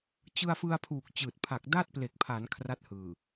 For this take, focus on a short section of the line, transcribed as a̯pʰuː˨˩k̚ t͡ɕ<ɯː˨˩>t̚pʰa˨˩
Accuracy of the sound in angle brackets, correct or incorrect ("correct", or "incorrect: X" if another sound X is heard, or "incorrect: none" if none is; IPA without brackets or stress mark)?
correct